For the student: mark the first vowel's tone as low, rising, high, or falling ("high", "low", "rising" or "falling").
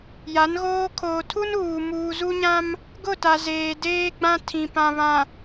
rising